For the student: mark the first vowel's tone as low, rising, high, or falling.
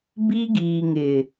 high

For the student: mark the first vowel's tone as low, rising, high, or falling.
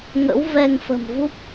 rising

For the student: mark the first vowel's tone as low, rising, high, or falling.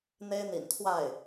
high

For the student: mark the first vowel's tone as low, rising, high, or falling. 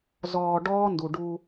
low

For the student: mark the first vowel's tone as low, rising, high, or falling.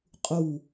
falling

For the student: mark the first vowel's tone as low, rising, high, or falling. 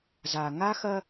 low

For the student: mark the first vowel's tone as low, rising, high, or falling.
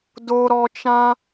low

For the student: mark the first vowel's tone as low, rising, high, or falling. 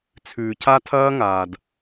low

